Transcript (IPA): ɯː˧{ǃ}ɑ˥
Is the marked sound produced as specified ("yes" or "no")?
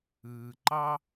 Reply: yes